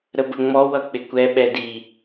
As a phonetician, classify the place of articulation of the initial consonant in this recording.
alveolar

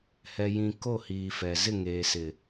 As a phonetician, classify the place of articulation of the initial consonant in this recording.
glottal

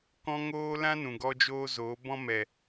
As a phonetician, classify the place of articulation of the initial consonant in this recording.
velar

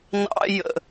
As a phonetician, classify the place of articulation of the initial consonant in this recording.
alveolar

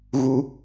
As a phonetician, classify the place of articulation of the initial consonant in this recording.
velar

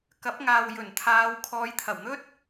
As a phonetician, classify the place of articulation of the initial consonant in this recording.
velar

